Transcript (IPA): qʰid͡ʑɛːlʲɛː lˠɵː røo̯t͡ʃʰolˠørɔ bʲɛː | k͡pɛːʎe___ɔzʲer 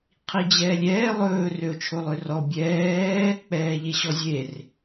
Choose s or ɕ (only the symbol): ɕ